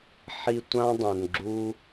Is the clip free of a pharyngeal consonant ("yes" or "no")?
no